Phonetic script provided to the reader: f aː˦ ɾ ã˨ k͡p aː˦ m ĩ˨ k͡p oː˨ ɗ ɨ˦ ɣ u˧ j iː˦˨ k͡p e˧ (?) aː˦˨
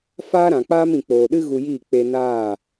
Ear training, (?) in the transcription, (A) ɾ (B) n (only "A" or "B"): B